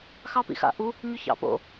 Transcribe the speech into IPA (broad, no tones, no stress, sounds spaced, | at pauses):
x ɑ p ḭ x a̰ ʔ u | ɲ ʏ ç ɑ̰ p o̰